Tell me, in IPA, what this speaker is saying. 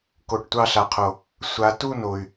k o˨ ʈ tʷ ɑ˦ ɬ a˨ qʰ o˨ | sʷ a˨ t u˦ n o˨ y̯

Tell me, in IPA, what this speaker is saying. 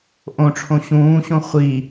ʔ õ ʈ͡ʂʰ õ ɕ ũː ɕ õ χʷ i

